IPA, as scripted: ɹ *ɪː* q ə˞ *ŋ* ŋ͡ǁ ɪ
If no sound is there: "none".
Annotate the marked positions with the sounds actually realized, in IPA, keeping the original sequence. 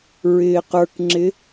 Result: ɪː, k

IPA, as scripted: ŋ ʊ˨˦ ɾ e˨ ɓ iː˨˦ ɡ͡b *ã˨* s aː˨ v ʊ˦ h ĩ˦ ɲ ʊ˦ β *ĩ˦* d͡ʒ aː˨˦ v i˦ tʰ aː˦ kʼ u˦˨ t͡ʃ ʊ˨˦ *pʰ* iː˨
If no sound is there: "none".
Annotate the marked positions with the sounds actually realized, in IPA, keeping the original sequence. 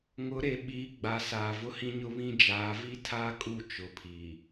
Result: a˨, ĩ˦, pʰ

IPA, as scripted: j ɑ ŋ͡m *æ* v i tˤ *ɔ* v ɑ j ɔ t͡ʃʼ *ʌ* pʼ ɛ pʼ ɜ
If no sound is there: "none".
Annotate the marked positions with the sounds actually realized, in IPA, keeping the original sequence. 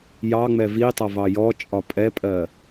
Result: ɛ, ʌ, ɒ

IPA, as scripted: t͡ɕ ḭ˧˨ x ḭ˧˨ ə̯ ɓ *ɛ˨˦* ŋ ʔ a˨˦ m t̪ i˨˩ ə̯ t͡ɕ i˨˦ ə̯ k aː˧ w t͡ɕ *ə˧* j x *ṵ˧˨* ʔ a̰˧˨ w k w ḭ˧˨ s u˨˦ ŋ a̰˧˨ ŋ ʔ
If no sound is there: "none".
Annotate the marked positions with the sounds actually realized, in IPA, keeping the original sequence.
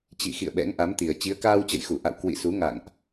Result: ɛ̰˧˥, ə̰˧˨, u˧˩

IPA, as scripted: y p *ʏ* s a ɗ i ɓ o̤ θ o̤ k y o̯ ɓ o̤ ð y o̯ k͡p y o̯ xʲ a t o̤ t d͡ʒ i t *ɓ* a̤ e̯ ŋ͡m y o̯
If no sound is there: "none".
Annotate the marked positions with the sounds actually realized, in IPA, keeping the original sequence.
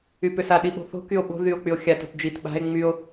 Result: ʏ, ɓ

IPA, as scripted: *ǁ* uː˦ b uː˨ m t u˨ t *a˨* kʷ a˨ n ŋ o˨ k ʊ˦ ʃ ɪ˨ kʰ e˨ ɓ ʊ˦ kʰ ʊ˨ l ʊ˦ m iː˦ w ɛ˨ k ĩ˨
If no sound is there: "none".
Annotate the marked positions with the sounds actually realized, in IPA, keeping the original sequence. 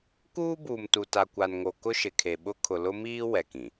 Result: k, a˨

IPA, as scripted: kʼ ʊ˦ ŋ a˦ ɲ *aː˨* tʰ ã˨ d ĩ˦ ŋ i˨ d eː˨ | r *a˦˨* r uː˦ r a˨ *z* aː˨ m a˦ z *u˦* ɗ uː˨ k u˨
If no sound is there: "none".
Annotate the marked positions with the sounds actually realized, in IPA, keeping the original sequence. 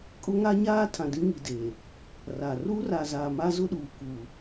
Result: aː˦, a˨, z, ʊ˦

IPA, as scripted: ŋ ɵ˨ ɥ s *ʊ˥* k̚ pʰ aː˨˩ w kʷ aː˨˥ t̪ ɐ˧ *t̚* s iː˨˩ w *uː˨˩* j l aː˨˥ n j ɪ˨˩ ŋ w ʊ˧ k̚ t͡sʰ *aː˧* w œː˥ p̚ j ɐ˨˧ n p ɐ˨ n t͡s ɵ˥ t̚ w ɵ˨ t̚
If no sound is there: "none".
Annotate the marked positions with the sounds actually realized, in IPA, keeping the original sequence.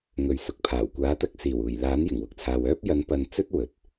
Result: ʊ˨, k̚, uː˨˩, aː˨

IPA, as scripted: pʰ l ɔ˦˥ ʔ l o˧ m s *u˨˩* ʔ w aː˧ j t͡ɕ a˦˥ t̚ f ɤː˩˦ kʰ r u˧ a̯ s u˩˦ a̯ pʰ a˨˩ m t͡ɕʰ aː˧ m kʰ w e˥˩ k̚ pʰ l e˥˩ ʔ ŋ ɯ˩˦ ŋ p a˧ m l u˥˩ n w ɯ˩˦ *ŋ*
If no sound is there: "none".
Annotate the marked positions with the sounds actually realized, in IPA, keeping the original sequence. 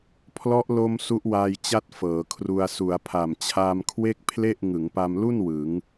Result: u˦˥, ŋ

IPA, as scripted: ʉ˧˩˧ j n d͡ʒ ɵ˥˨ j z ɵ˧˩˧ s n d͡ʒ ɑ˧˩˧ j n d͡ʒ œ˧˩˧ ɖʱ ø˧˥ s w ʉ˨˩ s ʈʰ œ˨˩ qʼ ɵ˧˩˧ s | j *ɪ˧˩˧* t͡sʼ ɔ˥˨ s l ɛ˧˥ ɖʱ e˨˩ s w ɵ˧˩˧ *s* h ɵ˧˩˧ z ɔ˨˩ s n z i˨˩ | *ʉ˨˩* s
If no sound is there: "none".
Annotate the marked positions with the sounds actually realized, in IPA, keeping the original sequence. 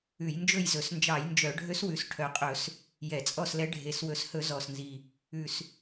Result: ɛ˧˩˧, s, ʉ˨˩

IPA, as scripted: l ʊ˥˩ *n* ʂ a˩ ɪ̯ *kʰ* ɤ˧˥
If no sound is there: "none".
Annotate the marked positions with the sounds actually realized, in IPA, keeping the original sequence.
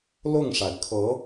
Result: ŋ, kʰ

